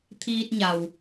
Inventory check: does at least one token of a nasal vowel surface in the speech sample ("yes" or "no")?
no